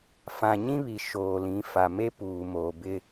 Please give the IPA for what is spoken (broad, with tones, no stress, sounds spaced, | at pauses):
f ã˨ ɲ ĩ˦ β i˨ ʃ oː˨ l ĩ˨˦ f a˨ m e˦ p uː˨ m oː˨ b ɪ˦